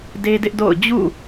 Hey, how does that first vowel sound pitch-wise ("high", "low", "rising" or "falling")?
high